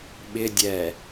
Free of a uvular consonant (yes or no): yes